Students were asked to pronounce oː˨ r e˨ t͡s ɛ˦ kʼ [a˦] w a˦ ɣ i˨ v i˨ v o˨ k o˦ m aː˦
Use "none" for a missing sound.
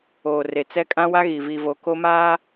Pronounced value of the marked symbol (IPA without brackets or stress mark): ã˦